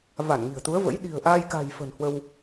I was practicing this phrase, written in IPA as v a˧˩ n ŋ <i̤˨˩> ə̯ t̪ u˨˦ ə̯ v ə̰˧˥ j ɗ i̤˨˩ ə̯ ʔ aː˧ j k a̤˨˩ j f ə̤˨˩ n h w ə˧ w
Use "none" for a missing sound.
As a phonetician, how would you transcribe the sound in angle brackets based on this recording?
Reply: i̤˨˩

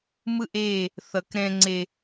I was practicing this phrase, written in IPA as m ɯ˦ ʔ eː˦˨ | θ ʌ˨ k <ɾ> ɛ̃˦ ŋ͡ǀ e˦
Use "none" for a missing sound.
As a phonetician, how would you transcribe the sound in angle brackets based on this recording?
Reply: ɾ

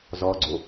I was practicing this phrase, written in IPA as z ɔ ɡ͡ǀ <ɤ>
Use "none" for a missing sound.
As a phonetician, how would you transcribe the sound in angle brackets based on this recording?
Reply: o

